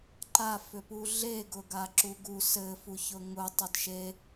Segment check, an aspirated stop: absent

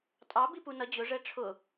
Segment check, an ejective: present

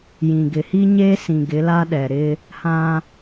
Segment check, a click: absent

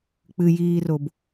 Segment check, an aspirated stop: absent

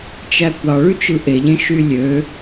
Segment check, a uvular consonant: absent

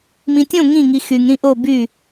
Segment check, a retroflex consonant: absent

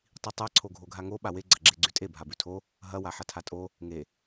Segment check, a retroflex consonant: absent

